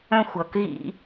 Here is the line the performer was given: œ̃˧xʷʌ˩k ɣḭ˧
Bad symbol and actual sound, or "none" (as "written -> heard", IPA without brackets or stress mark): none